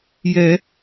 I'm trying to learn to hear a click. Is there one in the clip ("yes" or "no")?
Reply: no